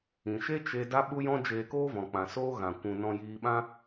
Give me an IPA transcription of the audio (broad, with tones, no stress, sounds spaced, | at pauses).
ĩ˨ ʃ e˦ t͡ʃ e˧ d a˦ ɓ u˦ j ɔ̃˦ d͡ʒ eː˧ k oː˦ v ɔ̃˨ k͡p ã˨ s oː˦ ɣ ã˨ kʷ ũ˨ n ɔ̃˧ j iː˧ ɓ ã˦